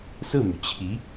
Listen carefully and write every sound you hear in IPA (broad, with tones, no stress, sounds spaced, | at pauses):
s ɹ̩˥˩ m y˩ t͡ɕʰ i˧˥